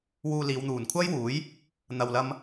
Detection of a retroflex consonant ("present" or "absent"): absent